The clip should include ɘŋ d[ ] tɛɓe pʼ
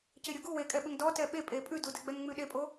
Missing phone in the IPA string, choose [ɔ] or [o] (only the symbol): ɔ